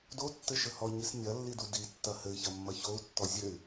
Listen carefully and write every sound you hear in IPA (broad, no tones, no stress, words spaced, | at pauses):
dotːɘʃɘ hɔɲis nʲɐlːidu ditːɐ hɘi̯çɐmːɐ çou̯tːɔ zʲɘy̯